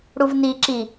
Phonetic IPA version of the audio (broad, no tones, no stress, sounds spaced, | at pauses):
ɽ u v n i ǁ i